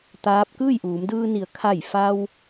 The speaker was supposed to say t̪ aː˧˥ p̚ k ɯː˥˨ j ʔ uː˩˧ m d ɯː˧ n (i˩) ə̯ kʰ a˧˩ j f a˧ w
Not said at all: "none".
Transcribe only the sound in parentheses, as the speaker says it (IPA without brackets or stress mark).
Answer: i˩˧